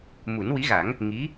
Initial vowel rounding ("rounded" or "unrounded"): rounded